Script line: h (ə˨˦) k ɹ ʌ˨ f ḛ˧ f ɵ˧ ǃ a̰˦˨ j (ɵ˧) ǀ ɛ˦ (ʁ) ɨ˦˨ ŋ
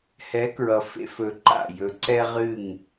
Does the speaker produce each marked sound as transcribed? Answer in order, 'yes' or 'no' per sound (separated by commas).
no, yes, yes